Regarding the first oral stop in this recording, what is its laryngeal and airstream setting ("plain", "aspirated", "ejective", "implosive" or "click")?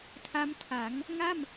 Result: aspirated